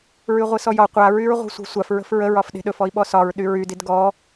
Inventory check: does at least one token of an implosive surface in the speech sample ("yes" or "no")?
yes